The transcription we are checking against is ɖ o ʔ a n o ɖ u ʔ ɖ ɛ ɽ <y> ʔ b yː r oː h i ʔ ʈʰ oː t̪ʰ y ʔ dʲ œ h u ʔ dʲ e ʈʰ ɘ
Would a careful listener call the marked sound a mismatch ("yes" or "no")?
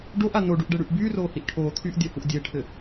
no